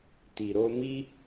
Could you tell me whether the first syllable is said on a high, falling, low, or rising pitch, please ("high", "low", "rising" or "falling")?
low